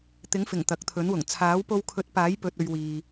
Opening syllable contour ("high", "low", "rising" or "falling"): rising